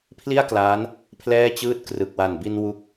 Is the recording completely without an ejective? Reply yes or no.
yes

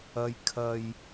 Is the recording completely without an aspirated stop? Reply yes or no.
no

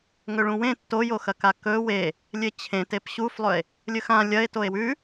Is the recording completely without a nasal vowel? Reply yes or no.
no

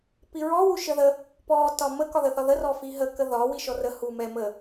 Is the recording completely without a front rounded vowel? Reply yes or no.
yes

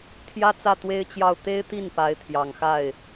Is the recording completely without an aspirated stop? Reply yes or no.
no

